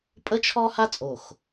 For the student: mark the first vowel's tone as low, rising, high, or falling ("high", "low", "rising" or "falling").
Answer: high